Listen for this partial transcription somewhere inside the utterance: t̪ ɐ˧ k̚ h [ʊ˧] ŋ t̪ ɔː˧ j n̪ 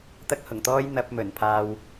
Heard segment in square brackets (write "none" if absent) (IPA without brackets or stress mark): ʊ˨˩